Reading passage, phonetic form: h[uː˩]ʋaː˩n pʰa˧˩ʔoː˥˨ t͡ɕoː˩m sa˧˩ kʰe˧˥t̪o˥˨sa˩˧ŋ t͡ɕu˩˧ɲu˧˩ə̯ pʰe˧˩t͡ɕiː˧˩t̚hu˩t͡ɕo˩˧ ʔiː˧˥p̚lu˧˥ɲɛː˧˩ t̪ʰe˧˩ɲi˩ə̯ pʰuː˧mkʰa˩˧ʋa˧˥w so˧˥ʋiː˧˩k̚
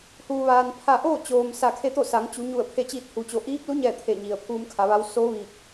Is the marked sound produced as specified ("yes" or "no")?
yes